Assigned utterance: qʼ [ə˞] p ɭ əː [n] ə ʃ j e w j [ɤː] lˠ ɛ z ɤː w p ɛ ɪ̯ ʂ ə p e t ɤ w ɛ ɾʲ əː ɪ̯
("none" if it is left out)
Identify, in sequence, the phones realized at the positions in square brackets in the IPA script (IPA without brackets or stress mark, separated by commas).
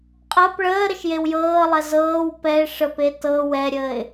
ɤ, ɾ, ɤː